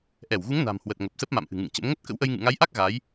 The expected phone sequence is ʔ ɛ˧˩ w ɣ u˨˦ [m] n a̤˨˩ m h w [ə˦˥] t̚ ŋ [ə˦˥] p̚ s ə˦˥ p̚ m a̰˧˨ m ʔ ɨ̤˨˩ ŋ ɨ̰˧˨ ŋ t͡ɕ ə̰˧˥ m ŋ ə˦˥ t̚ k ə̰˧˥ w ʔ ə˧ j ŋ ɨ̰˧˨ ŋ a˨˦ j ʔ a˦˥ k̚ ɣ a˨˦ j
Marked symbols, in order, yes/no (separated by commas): no, no, no